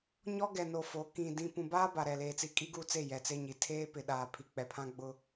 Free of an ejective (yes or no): no